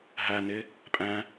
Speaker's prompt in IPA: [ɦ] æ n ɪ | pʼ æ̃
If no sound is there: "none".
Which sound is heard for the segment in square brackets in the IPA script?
ɦ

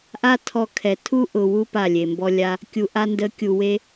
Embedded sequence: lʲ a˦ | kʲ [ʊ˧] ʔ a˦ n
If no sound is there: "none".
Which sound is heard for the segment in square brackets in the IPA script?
u˧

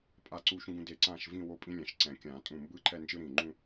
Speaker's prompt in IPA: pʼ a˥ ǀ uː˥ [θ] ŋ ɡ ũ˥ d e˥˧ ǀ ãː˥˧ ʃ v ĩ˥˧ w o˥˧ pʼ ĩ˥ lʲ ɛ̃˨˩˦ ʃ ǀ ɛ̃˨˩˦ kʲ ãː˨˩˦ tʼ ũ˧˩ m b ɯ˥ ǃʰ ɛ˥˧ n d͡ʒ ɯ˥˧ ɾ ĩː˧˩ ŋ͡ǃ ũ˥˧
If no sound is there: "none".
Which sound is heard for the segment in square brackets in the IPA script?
ʃ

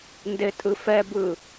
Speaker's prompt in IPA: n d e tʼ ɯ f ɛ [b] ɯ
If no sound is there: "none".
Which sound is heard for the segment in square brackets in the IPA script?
b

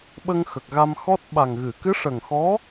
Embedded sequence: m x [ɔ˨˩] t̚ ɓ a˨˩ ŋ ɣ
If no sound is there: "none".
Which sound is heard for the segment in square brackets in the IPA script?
ɔ˦˥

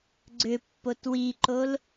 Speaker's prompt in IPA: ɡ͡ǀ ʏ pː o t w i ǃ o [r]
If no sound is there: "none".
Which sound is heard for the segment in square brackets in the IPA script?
l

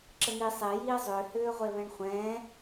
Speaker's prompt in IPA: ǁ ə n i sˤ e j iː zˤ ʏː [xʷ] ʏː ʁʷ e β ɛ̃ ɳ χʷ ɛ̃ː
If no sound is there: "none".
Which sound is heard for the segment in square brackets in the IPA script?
h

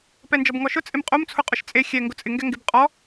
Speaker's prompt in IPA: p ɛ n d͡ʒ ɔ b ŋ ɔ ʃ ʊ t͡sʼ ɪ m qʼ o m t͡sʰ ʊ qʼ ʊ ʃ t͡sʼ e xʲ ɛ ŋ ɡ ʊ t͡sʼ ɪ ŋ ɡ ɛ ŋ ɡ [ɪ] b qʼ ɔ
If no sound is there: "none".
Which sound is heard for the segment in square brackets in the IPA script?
ɪ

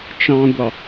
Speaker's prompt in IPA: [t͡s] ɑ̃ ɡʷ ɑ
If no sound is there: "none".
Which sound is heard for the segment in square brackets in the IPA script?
t͡ʃ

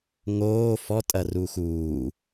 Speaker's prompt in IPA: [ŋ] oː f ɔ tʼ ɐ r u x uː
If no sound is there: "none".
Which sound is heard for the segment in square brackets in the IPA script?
ŋ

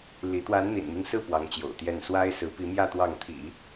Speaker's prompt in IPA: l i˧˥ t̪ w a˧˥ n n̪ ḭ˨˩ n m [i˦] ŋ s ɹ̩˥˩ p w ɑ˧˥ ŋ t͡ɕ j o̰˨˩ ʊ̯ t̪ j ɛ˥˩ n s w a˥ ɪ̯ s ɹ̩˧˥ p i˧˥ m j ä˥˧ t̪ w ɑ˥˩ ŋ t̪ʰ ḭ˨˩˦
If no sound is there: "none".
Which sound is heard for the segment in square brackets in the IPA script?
i˦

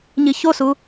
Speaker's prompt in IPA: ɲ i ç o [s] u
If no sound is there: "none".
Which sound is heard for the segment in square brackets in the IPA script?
s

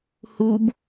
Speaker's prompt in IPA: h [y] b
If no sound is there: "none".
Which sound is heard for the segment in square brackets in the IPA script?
u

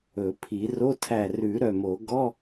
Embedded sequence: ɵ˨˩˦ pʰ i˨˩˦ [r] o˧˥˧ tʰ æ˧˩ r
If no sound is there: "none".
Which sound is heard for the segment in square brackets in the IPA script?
r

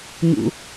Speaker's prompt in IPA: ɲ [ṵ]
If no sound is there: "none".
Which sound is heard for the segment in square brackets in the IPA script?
ṵ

